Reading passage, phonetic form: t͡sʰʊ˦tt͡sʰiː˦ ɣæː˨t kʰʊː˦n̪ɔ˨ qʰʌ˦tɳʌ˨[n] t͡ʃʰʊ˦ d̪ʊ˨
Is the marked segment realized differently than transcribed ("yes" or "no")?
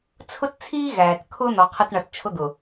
yes